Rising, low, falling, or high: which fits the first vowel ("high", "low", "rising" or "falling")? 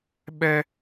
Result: high